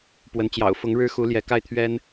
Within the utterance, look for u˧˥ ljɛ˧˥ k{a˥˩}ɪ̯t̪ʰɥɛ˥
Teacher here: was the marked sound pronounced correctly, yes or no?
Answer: yes